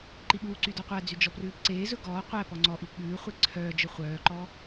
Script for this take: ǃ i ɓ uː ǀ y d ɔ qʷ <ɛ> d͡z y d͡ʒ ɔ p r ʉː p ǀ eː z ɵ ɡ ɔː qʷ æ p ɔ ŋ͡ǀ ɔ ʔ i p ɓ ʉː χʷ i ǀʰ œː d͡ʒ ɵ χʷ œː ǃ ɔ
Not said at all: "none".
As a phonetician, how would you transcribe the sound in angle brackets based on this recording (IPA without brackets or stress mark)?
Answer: æ